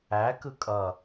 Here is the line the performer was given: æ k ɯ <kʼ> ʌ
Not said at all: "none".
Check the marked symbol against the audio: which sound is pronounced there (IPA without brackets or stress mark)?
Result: kʼ